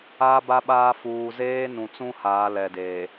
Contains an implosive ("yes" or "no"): yes